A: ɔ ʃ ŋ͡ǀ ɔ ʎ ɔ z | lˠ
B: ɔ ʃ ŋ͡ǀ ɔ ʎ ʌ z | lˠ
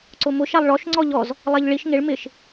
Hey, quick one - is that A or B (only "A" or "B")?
A